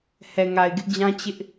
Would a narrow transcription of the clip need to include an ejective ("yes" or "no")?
no